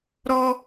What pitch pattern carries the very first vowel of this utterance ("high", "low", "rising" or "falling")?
high